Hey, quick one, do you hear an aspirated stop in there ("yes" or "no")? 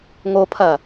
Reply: yes